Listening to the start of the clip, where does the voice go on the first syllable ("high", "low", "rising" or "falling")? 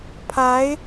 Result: rising